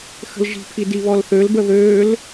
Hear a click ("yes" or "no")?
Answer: no